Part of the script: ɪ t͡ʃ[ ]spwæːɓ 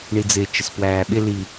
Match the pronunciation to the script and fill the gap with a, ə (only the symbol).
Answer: ə